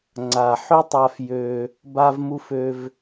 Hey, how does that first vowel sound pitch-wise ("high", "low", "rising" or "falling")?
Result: low